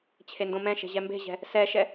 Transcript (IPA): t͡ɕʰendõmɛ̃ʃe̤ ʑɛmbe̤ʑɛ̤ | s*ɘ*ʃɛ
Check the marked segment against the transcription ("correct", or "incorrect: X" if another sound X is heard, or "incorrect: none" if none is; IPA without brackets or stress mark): incorrect: ɛ